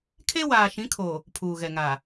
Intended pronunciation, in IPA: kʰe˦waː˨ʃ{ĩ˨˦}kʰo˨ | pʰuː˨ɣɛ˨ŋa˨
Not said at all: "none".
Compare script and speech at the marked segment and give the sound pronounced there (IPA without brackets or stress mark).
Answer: ĩ˨˦